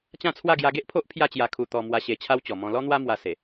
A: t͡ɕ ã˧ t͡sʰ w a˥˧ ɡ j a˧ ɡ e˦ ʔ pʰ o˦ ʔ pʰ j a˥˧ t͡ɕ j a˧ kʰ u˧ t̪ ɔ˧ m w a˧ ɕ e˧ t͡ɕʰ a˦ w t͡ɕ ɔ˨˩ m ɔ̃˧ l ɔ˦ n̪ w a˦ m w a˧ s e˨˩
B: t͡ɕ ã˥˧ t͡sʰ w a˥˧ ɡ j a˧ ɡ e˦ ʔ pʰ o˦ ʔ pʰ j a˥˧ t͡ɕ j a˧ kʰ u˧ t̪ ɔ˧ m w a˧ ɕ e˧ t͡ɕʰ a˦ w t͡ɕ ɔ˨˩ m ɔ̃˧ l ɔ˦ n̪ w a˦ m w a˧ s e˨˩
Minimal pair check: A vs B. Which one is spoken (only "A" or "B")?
B